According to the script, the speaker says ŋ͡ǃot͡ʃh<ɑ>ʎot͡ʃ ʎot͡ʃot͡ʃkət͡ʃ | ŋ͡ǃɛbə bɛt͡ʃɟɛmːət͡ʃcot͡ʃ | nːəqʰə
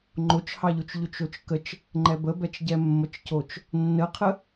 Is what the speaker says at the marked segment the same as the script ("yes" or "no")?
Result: yes